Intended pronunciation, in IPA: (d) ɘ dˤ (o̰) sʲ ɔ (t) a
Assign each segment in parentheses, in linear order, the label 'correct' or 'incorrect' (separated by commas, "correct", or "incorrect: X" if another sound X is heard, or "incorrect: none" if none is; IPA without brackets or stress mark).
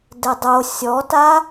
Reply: correct, incorrect: o, correct